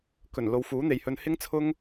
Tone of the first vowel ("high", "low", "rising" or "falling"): low